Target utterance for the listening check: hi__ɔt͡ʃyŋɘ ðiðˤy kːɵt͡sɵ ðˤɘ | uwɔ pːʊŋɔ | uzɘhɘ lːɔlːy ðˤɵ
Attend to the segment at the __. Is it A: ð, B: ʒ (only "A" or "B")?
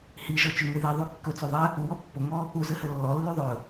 B